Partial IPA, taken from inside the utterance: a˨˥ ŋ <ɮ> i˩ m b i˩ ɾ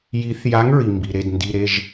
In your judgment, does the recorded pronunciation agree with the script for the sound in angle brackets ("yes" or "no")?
no